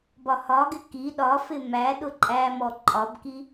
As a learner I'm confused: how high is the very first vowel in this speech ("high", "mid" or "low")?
low